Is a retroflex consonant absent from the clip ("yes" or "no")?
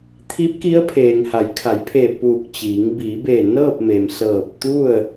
yes